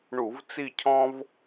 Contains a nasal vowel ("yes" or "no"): yes